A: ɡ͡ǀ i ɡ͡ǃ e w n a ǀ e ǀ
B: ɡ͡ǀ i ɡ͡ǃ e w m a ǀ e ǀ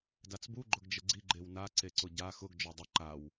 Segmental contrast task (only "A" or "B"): A